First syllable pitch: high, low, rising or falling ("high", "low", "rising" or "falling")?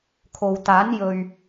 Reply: low